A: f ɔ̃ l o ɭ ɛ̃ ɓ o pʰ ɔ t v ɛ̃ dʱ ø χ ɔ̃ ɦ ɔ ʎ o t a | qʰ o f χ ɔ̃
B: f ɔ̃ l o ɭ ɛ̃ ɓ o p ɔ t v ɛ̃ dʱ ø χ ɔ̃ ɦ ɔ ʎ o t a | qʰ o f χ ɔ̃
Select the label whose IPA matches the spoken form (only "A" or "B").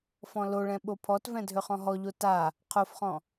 A